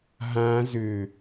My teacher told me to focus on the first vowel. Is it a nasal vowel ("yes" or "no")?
yes